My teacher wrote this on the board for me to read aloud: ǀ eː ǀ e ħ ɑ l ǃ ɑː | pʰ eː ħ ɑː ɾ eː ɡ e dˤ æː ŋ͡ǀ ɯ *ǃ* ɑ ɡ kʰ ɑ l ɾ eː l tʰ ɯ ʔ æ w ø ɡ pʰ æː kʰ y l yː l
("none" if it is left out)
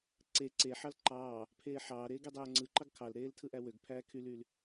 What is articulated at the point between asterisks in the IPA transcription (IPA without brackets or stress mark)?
ǃ